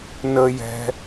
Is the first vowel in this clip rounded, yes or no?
no